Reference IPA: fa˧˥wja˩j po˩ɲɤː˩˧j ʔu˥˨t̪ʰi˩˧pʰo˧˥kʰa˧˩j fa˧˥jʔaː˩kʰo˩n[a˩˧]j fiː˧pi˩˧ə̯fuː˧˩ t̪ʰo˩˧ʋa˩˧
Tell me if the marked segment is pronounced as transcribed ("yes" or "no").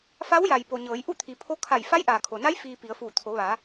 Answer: no